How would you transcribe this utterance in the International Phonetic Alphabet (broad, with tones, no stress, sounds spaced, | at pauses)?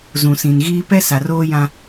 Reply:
z ũ˨ s ĩ˨ n ɣ iː˦ p ɛ˦ s a˨ r oː˦ j ã˦